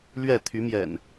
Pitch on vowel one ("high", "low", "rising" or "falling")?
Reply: falling